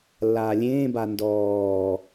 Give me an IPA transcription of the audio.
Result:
lː aː lʲ ẽː b a n d ɔː

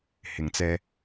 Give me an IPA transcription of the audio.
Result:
h ɪ˨ ŋ t͡s ɛː˧

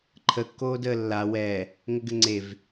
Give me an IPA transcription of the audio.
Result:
ǃʰ ə kː oː d əː lː a w ɛ | ŋ ə ɡ ɘ ŋ͡ǀ e v

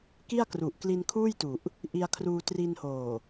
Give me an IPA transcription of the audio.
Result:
k i˥˩ a̯ k r u˨˩ ʔ k l i˧ n kʰ uː˥˩ j t u˨˩ ʔ | ʔ i˧ a̯ kʰ r uː˧ t r i˧ n h oː˨˩

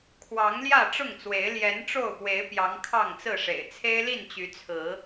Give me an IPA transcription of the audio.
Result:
kʰ w ɑ˨˦ ŋ l j ä˥˨ ʈ͡ʂ ʊ˥˨ ŋ t͡s w e˨˦ ɪ̯ l j ɛ˨˦ n ʈ͡ʂ o˥˨ ʊ̯ p w e˨˦ ɪ̯ p j ɑ˨˦ ŋ kʰ ɑ˥˨ ŋ t͡s ɹ̩˥˨ ʂ ḛ˨˩ ɪ̯ t͡sʰ e˦ ɪ̯ l i˥˨ n t͡ɕ y˨˦ t͡sʰ ɹ̩˨˦

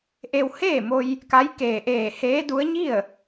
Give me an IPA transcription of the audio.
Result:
ʔ e˧ w h eː˥˨ m o˧ j | k a˧˥ j k eː˧˩ ʔ eː˧˩ h eː˧˥ d u˧˥ ə̯ ɲ i˥˨ ə̯

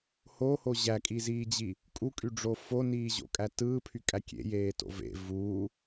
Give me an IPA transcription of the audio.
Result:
h o h o ʑ æ kʼ i z iː d͡ʑ i | kʼ u kʼ y ɖ͡ʐ o f o n iː ʑ o̰ kʼ æ t ɯː pʰ y kʼ æ kʲ ḛ j eː t o̰ v ḛ v uː

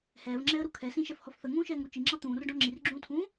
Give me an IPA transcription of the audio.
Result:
h ɛː v ŋ͡ǁ ɛː ə̯ ɾ u kʰ ɛ s ĩ ʃ ɛ f h ɔ f θ ə ŋ ũː ʃ ɛː ŋ ɾ u t͡ʃ i ŋ͡ǁ ɑ t̪ ũː r ɖ ɔ̃ ŋ͡ǁ i r ɡ͡ǁ ũː tʰ ũː

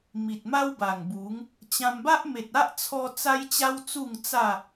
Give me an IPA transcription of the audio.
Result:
m i˨ t̚ m a˦ w b a˨˩ ŋ b u˨˦ ŋ | t͡ɕ ã˧ m b a˦ ʔ m e˨ t̚ a˦ ʔ t͡sʰ ɔ˧ t͡s a˦ j t͡ɕ a˦ w t͡s u˥˧ ŋ t͡s a˥˧

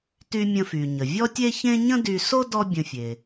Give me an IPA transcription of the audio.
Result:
t y˧ mʲ ə̃˧ f y˩ ɲ ə˩ vʲ ɔ˥ tʲ e˥ ç ẽ˥ ɲ ə̃˥ d y˧ s o˥ d ɔ˥ bʲ ə̃˧ fʲ e˩

